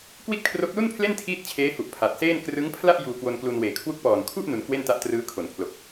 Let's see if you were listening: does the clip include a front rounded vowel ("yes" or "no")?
no